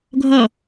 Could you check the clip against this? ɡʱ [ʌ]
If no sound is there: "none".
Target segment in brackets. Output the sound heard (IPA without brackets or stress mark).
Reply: ʌ